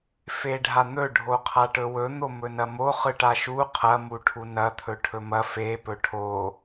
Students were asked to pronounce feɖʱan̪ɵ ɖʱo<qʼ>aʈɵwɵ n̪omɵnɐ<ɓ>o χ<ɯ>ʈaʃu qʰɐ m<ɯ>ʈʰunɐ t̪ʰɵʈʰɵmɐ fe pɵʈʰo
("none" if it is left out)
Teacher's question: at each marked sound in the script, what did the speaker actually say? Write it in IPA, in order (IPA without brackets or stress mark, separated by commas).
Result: qʰ, m, ɯ, u